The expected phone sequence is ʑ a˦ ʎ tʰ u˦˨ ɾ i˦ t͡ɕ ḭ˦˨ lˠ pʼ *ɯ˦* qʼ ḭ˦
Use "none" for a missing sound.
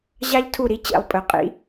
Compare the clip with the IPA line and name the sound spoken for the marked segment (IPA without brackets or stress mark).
ɯ˨